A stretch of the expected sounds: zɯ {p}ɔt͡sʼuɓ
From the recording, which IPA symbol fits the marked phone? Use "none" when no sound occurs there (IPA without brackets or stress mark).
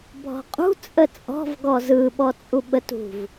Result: ɓ